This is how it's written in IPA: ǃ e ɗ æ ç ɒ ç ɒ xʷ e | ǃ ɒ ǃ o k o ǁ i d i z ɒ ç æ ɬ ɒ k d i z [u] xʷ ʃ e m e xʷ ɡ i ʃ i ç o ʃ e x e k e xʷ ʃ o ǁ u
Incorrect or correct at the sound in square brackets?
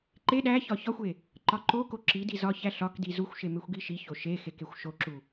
correct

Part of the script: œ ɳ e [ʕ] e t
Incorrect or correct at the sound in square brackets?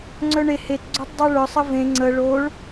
incorrect: h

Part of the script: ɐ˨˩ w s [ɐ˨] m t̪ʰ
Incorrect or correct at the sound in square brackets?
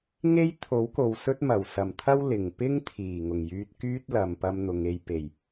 incorrect: ɐ˨˩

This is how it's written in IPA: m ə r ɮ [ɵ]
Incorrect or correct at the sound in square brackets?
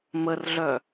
incorrect: œ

